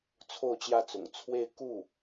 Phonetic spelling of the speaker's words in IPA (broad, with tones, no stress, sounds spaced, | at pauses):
t͡sʰ o˥˧ ʊ̯ t͡ɕ j ä˥˩ t͡s ʊ̰˨˩ ŋ t͡sʰ w e˥˧ ɪ̯ k u˥˩